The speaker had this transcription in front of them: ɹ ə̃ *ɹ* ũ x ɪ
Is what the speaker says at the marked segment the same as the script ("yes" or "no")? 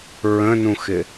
no